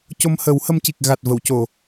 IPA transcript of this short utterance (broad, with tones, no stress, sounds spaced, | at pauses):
c o˧ m h ə˨˩˦ w h ə˧ m c i˨˩ k̚ ɣ a˨˩ t̚ v ə˨˩˨ w c o˨˩˨